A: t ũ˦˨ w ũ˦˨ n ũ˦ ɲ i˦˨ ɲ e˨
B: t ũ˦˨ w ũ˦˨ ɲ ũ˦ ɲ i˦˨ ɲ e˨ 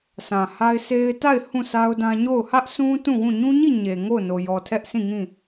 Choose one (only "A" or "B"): B